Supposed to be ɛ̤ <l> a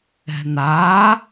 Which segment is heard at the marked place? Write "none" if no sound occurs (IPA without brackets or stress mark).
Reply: n̪